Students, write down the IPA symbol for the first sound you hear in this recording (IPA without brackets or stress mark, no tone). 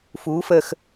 f